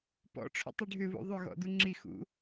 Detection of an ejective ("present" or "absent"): absent